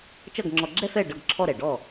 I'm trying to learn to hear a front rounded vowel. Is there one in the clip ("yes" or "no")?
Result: no